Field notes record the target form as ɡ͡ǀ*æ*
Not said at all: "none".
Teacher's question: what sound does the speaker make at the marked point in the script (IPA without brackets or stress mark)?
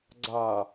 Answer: a